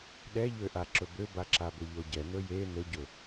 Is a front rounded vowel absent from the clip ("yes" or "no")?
no